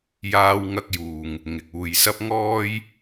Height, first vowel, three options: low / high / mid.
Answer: low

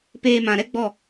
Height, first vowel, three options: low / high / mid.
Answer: mid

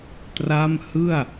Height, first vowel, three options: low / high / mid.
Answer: low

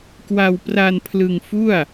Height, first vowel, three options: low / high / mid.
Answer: low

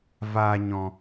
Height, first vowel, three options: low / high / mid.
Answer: low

